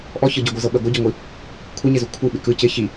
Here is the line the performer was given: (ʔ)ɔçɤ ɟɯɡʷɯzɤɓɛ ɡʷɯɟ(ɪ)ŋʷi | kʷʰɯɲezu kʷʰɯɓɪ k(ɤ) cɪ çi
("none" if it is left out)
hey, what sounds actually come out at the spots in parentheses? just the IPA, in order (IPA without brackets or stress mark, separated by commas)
ʔ, ɪ, ɯ